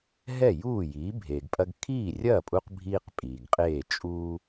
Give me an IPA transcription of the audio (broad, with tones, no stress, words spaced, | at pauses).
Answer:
ɦɛ˥˩juː˥˩jiː˩˥ bʱeː˩ɡpʼɐ˧ɡ kʰiː˥˩rʲɐː˥˩pʼu˧q bʱiː˥q pʼiː˩ɡqʼeː˥˩ t͡ʃʼuː˥